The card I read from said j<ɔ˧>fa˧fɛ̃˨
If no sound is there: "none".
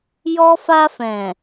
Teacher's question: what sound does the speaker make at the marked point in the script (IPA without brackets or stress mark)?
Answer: ɔ˧